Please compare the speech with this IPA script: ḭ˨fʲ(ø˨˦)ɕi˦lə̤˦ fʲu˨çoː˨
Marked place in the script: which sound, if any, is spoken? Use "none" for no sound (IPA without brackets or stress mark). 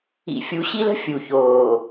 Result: u˨˦